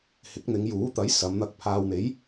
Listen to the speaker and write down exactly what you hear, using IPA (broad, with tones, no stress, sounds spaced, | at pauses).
h ɪ˨˥ k̚ n̪ ɪ˨˧ ŋ j uː˨˥ t̪ ɐ˨˥ j s ɐ˨˧ m n̪ ɐ˧ k̚ pʰ aː˨ w n̪ e˨˥ j